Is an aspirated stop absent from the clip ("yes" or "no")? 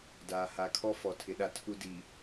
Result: no